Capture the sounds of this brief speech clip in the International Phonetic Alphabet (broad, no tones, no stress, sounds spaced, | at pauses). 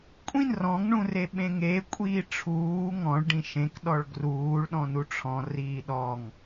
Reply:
kʷʼ ĩ n r ɔ̃ ŋ ɳ ũ r e ɓ ẽ ŋ e kʷʼ iː ʈ͡ʂʰ uː ŋ ɔ̃ ɭ ɖ ĩ ʃ ẽ k ɗ ɔ ɭ ɡ r uː ɭ ɗ ɔ̃ n u ʈ͡ʂʰ ɔ̃ r iː ɗ ɔ ŋ